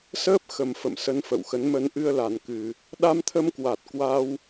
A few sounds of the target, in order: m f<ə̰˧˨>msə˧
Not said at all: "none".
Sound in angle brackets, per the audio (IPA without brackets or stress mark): ə̰˧˨